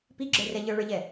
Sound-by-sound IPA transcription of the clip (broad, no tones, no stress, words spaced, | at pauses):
piɡ͡ǁə˞rɛ ʎə˞ɭə˞ʎɛ